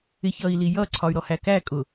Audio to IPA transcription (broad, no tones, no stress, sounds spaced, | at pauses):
ɪ ç ʌ i̯ l i j ʌ ǀʰ ɒ y̯ ɾ ɔ h æ k æ kʼ ʊ